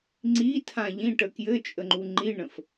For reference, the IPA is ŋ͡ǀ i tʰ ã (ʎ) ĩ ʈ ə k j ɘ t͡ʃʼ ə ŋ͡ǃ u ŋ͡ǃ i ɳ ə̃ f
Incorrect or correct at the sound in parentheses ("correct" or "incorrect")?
correct